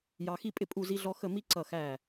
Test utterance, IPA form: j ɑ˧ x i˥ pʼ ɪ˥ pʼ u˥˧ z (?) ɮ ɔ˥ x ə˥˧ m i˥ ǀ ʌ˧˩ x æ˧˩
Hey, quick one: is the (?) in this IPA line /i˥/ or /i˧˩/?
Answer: i˥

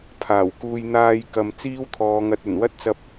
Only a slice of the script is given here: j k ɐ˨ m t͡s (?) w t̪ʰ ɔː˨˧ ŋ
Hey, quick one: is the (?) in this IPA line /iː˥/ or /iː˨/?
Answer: iː˥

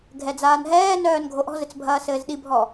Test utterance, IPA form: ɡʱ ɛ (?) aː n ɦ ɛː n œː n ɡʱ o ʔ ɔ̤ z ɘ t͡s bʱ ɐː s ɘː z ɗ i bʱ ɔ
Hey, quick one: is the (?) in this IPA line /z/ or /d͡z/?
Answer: d͡z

